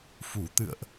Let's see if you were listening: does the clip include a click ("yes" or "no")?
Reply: no